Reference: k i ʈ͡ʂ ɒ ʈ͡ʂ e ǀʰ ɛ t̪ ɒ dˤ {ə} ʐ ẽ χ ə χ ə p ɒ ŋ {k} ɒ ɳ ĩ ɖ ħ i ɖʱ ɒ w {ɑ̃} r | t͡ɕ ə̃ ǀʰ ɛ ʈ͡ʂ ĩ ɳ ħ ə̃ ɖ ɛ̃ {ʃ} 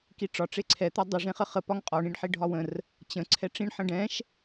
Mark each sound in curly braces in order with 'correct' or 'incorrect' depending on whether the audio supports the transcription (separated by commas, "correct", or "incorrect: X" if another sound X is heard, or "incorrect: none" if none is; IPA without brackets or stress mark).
correct, incorrect: qʼ, incorrect: ə̃, correct